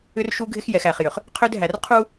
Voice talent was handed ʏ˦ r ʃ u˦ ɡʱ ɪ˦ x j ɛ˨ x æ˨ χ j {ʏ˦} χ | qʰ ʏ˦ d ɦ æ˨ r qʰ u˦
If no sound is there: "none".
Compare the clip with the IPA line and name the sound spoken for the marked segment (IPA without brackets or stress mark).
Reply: ʏ˨